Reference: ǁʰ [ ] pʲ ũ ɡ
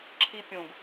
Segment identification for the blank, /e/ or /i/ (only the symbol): i